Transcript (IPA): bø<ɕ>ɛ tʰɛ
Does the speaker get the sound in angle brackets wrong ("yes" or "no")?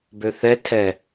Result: yes